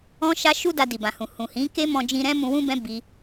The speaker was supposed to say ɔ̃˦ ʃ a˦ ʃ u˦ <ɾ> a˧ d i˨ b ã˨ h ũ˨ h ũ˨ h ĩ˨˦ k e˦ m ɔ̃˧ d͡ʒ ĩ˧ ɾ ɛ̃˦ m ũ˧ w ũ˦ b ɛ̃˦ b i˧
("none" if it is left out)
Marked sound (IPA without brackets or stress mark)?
d